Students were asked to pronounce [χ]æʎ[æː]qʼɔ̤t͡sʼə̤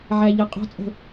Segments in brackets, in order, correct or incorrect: incorrect, incorrect

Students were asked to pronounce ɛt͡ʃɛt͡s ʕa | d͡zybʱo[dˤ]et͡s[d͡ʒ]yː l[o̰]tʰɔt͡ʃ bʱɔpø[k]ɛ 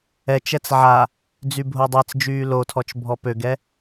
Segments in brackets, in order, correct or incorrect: correct, correct, incorrect, incorrect

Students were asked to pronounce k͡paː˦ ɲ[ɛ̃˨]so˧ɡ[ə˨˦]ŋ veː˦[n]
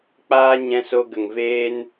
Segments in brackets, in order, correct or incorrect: incorrect, incorrect, correct

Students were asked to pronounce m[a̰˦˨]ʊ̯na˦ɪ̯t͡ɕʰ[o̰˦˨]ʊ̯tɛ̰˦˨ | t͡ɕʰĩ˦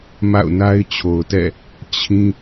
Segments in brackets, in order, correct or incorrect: correct, incorrect

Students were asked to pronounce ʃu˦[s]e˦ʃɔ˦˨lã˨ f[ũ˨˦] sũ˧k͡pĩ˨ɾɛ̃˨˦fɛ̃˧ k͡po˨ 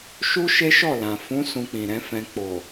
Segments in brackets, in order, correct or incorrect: incorrect, correct

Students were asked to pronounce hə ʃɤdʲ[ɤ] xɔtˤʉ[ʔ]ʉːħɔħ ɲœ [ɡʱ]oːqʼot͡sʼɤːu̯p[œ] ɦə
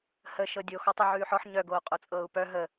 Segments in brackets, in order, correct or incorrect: incorrect, incorrect, incorrect, correct

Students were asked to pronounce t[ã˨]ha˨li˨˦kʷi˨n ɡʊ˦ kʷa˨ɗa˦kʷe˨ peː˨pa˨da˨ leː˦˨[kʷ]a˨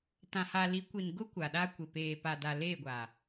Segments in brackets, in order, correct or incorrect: correct, incorrect

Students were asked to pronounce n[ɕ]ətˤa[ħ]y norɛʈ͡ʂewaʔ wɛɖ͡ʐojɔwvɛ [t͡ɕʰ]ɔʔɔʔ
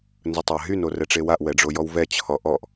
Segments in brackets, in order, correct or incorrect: incorrect, incorrect, correct

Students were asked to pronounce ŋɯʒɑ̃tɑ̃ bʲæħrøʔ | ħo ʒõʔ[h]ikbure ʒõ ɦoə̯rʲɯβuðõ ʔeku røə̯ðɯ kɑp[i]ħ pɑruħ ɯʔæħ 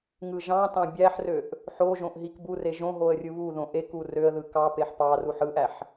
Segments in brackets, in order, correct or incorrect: incorrect, incorrect

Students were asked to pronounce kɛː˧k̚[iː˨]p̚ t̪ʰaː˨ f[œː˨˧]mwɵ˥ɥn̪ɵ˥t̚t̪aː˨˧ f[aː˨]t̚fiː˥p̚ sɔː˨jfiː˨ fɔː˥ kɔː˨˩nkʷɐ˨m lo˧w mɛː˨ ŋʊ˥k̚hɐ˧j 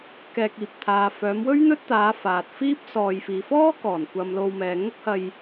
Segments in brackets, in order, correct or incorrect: correct, correct, correct

